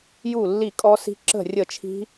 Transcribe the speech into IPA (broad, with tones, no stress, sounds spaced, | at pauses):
j u˥˨ lː i˥˨ kʼ ɔ˦˥ s i̤˦˥ ǁ ə̤˥˨ rʲ ə˥˨ t͡ʃʰ i̤˦˥